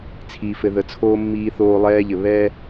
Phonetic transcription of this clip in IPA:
t͡sʰ iː˨ f ɘ˨ ð ə˨ t͡sʰ oː˦ mː iː˦ θ oː˦ lˠ ɛː˦ ʎ ɘ˨ β ɛ˦

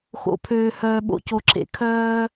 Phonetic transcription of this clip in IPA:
x o̰˨ pʰ øː˨ h œː˨ ɓ o̰˨ c o˨ ǁʰ ḛ˨ kʰ œː˦

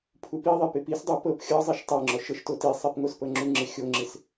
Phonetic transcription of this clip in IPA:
pʰ u p i ðˤ i p ɪ p i s dˤ o p ɤ p xʲ ɤ zˤ i ʃ tˤ ɤ ŋ͡ǁ ɔ ʃ ɤ ʃ t o t i sˤ i p ŋ o s p ɤ ŋ͡ǁ u ŋ͡ǁ ɪ xʲ o ŋ͡ǁ ɪ s

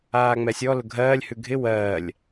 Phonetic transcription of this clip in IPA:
aː ŋ͡m ɛ sʲ ɔ l ʊ ɡʱ ɜː lʲ h ʉ ɡʱ ɪ w ɜː lʲ

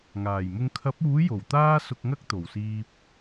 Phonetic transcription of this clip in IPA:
ŋ aː˨˩ j m ʊ˧ ŋ kʰ ɐ˨˥ p̚ uː˨˥ j o˨˩ w t̪ aː˥ s ʊ˧ k̚ ŋ ɐ˥ k̚ t̪ o˨˩ w s iː˧ p̚

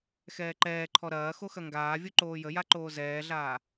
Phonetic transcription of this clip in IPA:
x ɛː ǃ ɛː ǃʰ ɔ ɾ ɐː x o x ɐ ŋ ɡ aː vʲ o ǃ oː j ə j a ǃ oː z ɛː ɮ aː

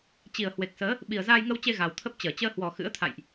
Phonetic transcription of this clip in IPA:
t͡ɕ i˨˩ ə̯ h w e˨˩ k̚ s əː˨˦ | ɓ i˨˩ ə̯ z aː˧ j ŋ ə˧ w t͡ɕ e˧ ɣ a˨˩ w t̪ʰ ə˦˥ p̚ t͡ɕ əː˧˩ t͡ɕ əː˧ h w ɔ˨˩ x ɨ̰˧˥ ə̯ t̪ʰ a̰˧˨ j ʔ

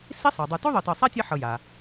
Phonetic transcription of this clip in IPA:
s i˥ sˤ ɤ˩ dˤ u˨ t u˥ ðˤ ɤ˨ t ɤ˨ sˤ ɛ˥ tʲ e˦ ħ ɤ˨ j a˩

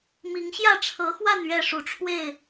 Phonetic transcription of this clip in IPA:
m i˨˦ ŋ ɕ j ä˥˨ ʈ͡ʂʰ ɤ˨˦ x w a˥˨ n ɥ ɛ˥˨ ʂ u˨˦ ʈ͡ʂʰ w e˥˨ ɪ̯

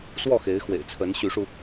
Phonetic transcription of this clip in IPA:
s w ɔ˥˩ x e˧˥ ɪ̯ x w ḛ˨˩ ɪ̯ t͡sʰ ə˧˥ n ɕ y˧˥ ʂ u˧

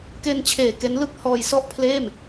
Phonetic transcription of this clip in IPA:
k e˧ n t͡ɕʰ eː˨˩ k e˦˥ n l ɯ˥˩ k̚ h ɔː˧ j s ɔ˥˩ ʔ pʰ l eː˥˩ m

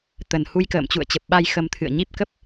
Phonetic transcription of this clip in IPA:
t̪ ə˨˩ n h u˧ j k ə̰ː˧˨ m t͡ɕ ṵ˧˨ ə̯ t͡ɕ ə˨˩ p̚ ɓ a˧ j x ə˧ m t̪ʰ ɨ̰˧˨ ə̯ ɲ i˦˥ p̚ k ə˦˥ p̚

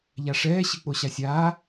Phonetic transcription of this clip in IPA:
ʎ a ʂ ɛː ɕ ɨ k͡p o ɕ a sʲ aː

